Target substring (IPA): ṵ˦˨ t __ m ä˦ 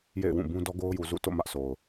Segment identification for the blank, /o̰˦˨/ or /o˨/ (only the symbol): o̰˦˨